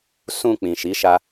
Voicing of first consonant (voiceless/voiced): voiceless